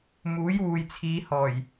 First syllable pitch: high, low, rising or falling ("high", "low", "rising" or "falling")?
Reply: rising